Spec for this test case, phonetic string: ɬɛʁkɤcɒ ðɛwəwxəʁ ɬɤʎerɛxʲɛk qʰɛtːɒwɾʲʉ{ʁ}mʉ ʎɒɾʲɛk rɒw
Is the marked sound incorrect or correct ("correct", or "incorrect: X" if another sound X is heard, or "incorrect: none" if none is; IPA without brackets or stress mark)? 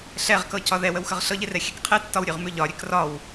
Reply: correct